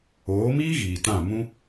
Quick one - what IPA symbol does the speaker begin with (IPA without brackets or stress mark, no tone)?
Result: oː